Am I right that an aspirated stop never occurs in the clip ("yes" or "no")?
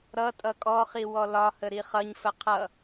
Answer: no